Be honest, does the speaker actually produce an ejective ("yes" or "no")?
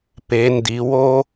no